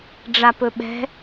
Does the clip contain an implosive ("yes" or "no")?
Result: yes